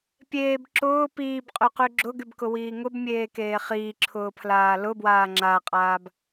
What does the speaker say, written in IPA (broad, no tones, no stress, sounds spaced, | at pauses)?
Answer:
pʲ eː b ǁ ʊː p iː b qʼ y q y ɡ͡ǁ ʊ ɡ y b k ʊ w iː ŋ ʊ b mʲ eː k eː χ iː ǁʰ ʊː pʰ l aː l ʊ b w aː ŋ͡ǁ a qʼ aː b